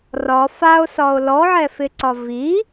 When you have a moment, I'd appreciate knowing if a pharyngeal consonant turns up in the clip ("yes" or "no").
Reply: yes